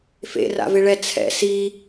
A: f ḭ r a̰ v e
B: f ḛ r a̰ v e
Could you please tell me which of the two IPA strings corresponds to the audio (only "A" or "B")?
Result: B